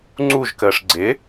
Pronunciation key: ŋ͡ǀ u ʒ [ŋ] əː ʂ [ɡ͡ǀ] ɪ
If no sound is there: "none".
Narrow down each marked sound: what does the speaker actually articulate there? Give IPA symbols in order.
k, ɡ͡ǀ

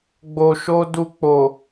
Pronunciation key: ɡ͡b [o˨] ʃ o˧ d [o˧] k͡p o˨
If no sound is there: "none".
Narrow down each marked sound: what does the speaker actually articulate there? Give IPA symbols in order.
o˨, u˧

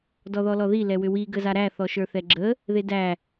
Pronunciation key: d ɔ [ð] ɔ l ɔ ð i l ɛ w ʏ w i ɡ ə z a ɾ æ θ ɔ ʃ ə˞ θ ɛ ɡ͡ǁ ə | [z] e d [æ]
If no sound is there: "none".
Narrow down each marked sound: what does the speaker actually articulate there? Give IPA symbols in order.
ð, ð, æ

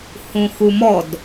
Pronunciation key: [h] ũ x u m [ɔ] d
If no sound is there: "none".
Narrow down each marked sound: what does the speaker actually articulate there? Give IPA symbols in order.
h, ɔ

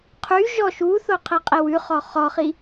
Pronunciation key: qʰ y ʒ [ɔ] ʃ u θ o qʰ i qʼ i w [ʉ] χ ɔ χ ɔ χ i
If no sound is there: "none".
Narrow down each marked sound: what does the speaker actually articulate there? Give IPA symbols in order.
ɔ, ʉ

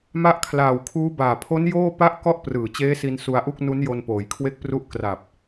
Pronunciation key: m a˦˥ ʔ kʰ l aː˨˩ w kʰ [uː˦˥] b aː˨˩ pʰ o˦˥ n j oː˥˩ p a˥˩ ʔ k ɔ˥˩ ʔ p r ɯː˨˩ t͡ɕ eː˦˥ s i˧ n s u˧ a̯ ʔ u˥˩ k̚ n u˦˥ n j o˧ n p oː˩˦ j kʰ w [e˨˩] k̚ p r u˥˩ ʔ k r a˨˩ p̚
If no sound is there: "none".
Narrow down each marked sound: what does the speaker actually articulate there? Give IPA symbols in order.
uː˦˥, e˦˥

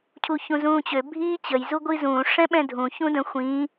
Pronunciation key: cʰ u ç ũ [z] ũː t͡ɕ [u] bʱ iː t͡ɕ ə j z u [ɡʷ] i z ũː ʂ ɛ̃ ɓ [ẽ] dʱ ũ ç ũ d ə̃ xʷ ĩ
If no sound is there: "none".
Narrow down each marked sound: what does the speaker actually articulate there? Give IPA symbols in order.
z, ø, ɡʷ, ɛ̃

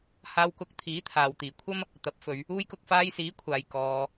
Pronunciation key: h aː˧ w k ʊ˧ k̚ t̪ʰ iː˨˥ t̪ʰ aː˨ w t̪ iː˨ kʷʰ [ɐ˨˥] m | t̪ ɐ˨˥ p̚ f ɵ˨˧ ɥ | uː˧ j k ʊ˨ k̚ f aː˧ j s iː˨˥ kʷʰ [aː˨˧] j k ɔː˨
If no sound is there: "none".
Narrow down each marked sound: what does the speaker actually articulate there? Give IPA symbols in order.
ɐ˥, aː˨

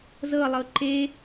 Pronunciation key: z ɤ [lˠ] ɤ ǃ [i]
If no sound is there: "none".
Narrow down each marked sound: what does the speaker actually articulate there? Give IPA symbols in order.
lˠ, e

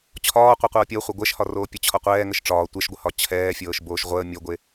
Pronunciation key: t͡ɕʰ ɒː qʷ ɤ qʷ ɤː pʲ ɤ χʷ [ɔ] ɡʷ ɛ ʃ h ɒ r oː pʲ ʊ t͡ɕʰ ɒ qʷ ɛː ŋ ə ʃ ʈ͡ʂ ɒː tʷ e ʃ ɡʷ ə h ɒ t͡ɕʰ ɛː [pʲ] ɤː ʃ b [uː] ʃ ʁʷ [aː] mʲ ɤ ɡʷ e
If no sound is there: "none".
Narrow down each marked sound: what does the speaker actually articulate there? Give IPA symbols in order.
ɤ, fʲ, oː, əː

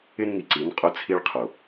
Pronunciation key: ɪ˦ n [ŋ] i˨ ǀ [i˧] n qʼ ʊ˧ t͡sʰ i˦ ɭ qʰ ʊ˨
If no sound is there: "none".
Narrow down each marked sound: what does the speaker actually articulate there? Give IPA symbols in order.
ŋ, i˨˦

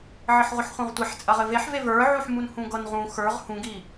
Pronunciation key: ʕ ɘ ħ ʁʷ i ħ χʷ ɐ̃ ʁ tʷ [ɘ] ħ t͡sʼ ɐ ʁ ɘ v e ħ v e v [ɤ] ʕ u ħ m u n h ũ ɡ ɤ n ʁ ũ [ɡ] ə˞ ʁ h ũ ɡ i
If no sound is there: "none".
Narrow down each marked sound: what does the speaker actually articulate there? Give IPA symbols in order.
e, ə˞, x

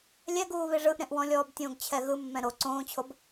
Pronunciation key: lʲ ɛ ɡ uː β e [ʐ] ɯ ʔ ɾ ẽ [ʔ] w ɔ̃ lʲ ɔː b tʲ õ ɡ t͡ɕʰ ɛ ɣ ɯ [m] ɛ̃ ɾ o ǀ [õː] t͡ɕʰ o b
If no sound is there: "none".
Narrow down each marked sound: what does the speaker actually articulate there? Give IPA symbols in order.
ʐ, ʔ, mː, õː

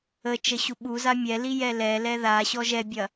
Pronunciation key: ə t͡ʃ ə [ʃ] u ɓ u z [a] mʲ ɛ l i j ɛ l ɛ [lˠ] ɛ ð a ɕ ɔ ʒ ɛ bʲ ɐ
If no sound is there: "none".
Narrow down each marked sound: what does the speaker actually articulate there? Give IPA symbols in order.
ɕ, a, l

